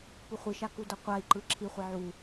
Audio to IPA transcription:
puχʷiʃa kudʌqʷai̯ǃɯ ǁʰiχʷʌ ʕu

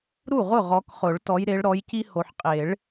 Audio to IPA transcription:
ɾu˥˩ʁʊ˥˩ ʁɔ˨˦kχʊ˨˩˦ɭ tɔ˨˦jɾe˨˦ɭ ɾɔ˨˦jci˦ ho˨ħqʼe˨˩˦ɭ

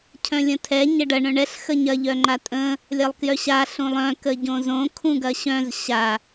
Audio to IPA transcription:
cʰœ̃lʲə̃tʰɛ ɲɐɖɐ ɳœ̃ɳɛɬ xəɲɐ ʎœŋ͡ǃatʼə̃ | lʲɐlˠkjœɕa ɬũlˠœ̃ kəɟõzõ kʰũɡɐɕœ̃z ɕa

